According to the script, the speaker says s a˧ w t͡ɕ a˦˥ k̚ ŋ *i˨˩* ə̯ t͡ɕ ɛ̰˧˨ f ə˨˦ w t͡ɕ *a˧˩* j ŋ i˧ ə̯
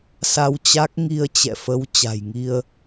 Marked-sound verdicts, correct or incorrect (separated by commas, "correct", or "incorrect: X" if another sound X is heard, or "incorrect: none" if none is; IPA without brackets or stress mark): incorrect: i˧, incorrect: a̤˨˩